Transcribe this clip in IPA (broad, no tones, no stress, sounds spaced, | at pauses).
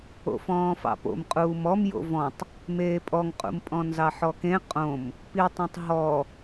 o̰ f ɔ̃ː f ɑ̰ p o̰ m qʼ uː m ɔ m j o̰ v ɔ̃ tˤ | m eː pʼ ɔ ŋ qʼ ṵ m pʼ ɔ̃ n z ɑ ħ ɔ k ẽ qʼ õ m | p i tˤ õ tˤ ɦ ɔ